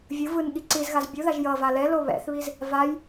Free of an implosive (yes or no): no